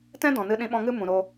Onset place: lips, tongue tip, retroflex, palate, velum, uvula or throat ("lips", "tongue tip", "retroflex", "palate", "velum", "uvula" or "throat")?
tongue tip